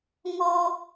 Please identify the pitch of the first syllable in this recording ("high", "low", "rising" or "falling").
high